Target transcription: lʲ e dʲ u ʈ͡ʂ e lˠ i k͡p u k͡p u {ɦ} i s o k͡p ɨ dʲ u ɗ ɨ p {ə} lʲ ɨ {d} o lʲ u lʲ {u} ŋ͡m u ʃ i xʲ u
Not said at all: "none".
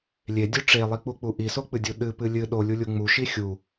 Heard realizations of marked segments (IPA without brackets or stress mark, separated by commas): ʔ, ɨ, ɗ, u